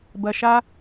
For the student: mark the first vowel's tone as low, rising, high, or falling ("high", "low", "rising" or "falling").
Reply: low